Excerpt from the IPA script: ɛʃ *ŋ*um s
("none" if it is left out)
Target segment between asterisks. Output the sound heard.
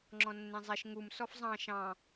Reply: ŋ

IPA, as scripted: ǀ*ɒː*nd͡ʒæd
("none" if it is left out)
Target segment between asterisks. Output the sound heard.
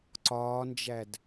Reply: ɒː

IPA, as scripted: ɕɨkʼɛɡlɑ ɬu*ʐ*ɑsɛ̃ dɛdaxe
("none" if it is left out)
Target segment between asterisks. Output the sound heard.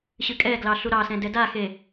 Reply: ɾ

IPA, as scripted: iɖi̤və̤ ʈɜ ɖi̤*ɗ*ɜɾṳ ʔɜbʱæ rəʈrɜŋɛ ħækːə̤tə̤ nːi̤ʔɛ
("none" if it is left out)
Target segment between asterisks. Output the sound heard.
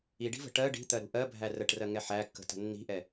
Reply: t̪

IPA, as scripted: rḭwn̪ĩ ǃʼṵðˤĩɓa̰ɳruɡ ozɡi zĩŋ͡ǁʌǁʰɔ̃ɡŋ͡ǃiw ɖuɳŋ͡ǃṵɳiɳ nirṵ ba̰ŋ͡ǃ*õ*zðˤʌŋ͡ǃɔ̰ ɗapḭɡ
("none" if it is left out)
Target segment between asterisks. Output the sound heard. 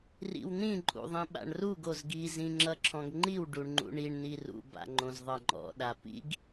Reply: õ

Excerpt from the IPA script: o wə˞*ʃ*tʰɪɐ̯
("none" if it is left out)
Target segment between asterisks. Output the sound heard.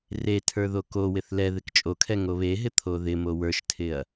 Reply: ʃ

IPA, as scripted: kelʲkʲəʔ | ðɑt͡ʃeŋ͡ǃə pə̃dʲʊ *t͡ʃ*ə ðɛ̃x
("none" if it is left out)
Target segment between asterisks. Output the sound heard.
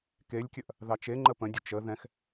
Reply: t͡ʃ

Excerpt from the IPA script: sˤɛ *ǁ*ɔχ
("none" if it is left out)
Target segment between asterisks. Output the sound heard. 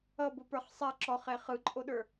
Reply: ǁ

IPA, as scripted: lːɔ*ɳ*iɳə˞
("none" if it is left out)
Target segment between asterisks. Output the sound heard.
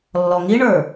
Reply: ŋ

